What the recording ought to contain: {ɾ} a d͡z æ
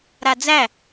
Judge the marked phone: correct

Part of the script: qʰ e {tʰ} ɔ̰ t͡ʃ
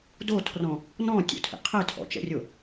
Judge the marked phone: correct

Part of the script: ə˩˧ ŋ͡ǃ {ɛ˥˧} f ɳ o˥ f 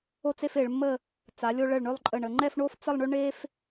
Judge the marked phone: correct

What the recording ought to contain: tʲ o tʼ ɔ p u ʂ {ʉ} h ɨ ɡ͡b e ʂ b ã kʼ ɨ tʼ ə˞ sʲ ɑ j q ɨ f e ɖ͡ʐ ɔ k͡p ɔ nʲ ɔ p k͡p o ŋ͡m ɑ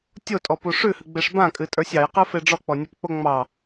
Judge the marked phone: correct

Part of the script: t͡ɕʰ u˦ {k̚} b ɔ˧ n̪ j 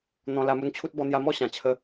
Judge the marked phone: incorrect: t̚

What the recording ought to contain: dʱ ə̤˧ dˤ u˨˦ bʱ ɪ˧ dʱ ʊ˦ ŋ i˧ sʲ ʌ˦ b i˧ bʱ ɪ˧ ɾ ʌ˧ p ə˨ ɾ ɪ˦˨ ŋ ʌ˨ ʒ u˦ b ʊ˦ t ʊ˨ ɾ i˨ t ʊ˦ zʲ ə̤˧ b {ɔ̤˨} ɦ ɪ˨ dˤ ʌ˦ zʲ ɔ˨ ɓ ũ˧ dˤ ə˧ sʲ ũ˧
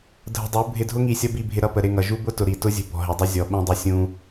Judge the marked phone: correct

